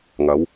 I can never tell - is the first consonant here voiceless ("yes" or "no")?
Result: no